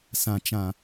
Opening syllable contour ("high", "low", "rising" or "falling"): low